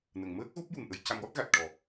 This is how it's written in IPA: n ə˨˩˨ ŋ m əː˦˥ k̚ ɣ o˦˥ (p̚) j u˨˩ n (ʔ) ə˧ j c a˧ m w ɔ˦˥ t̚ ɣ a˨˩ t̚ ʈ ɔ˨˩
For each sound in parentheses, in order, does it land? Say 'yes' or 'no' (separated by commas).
yes, yes